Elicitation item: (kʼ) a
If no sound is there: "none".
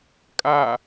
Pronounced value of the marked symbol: kʼ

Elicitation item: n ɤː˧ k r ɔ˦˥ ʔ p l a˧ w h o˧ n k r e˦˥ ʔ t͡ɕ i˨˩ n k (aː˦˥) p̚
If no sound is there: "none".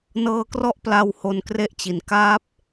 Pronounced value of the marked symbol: aː˦˥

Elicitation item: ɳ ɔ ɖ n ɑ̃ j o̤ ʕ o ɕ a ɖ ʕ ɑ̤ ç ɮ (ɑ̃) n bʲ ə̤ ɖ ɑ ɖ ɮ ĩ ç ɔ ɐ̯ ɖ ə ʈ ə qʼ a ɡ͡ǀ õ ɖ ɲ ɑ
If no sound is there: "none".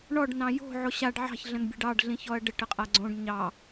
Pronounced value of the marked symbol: ə̃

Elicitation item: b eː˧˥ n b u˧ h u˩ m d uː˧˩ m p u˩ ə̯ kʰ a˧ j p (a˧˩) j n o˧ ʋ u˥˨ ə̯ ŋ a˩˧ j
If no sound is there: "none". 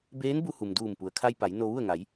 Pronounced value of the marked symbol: a˩˧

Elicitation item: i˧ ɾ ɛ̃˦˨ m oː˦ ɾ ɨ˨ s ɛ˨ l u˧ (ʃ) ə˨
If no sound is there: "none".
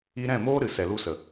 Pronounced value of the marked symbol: s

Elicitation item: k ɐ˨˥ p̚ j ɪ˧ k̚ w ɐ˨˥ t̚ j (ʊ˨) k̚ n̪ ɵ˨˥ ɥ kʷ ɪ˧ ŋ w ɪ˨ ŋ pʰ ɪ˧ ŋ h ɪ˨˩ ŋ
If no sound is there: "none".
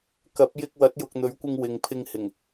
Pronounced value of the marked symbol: ʊ˨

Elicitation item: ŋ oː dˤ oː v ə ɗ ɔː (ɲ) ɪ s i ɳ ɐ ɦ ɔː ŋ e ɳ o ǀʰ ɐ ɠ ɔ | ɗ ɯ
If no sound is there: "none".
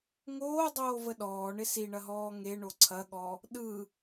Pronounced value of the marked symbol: ɳ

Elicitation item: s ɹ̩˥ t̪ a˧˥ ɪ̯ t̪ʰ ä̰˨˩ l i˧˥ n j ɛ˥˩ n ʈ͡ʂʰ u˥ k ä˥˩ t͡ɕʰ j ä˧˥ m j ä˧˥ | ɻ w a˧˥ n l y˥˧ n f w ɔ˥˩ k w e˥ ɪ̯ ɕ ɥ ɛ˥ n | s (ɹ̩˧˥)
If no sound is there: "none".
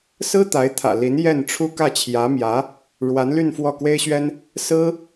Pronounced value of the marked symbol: ɹ̩˥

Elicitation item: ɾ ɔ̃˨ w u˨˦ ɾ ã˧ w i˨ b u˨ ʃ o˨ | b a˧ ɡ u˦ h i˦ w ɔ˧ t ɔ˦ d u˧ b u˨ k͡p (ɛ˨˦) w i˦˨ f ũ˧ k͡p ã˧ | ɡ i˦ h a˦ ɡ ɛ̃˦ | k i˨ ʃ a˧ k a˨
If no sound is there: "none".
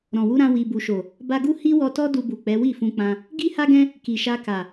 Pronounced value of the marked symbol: ɛ˨˦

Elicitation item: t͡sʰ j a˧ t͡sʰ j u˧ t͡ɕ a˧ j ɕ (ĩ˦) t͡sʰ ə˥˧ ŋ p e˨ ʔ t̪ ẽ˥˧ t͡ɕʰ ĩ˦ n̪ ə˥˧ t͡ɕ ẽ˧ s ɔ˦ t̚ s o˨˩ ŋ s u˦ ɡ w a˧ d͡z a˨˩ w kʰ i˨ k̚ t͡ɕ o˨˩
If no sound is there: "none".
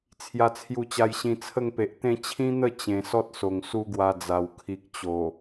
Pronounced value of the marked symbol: ĩ˧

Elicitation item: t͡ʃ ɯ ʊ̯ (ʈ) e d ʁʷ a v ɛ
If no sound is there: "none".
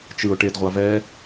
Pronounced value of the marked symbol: ʈ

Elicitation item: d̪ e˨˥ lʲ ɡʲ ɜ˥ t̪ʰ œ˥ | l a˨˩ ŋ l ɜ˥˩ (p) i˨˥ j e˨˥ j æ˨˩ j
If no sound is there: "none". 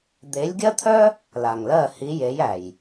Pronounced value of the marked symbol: h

